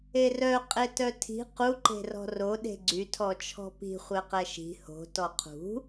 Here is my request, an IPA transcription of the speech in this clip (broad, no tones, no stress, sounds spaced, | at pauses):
e r œ qʼ e t œ tʰ i̤ q u ǃ e̤ r ɔ̤ r o ɗ e̤ ɡ͡ǀ y tʰ ɔ t͡ʃʰ ɔ̤ p i̤ χʷ ɛ q ɛ ʃ i̤ h o̤ t ɔ qʰ ṳ